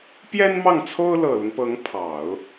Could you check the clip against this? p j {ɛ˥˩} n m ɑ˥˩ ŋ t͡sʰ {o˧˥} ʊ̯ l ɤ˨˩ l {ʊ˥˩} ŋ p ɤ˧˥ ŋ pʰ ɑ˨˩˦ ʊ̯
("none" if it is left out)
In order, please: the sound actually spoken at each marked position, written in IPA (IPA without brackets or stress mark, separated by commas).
ɛ˥, o˥, ʊ˦